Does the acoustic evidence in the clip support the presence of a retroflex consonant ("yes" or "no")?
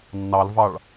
yes